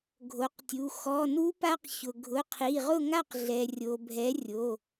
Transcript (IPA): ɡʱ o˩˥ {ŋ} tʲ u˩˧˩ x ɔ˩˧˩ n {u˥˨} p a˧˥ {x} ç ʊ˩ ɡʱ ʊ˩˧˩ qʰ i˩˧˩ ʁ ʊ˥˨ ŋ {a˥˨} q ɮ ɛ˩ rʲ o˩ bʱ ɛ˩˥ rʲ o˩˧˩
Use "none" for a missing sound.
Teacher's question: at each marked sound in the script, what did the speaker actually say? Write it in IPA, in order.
q, u˧˥, q, a˥˨

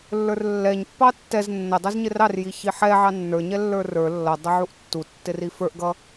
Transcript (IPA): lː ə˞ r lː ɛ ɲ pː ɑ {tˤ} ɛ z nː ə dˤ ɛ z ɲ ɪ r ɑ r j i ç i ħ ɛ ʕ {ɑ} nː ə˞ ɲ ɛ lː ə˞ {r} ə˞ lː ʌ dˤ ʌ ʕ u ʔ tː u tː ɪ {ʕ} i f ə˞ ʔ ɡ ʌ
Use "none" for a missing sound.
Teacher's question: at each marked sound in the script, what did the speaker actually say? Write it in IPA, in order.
tː, ɑ, r, r

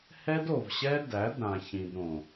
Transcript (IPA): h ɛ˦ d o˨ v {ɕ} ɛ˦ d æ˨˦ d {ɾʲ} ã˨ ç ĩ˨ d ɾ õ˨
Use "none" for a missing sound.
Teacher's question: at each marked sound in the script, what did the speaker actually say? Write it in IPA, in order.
ɕ, ɾ

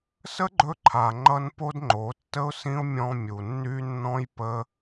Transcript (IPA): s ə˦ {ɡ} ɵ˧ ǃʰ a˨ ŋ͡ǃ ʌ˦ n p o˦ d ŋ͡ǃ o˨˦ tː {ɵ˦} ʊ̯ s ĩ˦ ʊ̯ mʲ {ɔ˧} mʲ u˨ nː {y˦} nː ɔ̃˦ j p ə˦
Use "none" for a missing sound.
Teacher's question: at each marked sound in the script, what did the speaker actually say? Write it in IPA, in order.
ɡ͡ǃ, ə˦, ɔ̃˧, y˦

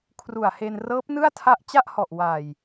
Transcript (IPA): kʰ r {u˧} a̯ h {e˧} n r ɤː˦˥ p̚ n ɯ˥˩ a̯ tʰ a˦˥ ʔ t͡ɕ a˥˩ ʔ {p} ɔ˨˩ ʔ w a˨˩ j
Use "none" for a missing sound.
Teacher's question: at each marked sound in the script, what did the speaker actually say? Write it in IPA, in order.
u˨˩, e˧, h

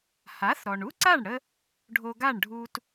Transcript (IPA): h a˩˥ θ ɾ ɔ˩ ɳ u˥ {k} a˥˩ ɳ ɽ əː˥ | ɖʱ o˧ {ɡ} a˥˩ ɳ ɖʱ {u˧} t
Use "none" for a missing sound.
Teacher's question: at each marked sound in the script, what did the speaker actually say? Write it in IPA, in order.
ǀ, ɡ, uː˧

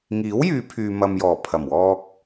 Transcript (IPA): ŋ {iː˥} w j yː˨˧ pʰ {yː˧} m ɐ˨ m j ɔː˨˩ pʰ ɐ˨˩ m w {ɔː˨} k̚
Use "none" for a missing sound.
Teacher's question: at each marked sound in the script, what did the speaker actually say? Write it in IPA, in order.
iː˨˥, yː˧, ɔː˧

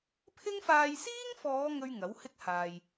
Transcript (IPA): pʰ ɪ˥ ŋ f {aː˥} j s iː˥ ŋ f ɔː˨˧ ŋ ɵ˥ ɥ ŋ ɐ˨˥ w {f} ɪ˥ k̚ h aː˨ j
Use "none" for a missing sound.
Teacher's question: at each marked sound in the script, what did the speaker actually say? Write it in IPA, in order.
aː˧, h

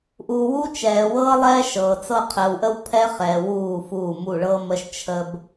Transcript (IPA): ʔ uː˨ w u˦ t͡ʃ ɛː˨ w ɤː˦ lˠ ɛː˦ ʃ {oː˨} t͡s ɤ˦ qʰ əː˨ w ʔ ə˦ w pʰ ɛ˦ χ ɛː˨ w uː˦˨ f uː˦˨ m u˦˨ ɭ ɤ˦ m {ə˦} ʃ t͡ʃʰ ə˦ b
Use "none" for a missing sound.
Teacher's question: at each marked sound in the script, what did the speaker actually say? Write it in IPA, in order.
ɤː˨, ə˦

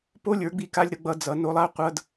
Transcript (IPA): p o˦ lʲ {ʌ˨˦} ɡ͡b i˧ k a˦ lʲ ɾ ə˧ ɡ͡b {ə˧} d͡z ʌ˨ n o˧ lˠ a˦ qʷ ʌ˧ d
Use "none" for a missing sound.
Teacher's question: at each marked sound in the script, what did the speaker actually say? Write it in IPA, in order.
ə˞˨˦, ʌ˧

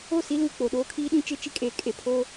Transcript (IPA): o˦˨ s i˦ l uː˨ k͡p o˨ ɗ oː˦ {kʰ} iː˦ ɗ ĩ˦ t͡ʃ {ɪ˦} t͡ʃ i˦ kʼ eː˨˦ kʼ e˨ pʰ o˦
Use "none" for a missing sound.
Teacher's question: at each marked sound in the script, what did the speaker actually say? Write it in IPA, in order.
kʰ, ɪ˦

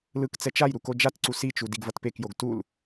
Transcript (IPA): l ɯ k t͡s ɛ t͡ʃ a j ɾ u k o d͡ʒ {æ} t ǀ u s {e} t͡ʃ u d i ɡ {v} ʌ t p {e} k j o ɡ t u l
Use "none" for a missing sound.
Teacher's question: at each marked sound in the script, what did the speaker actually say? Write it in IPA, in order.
a, i, v, e

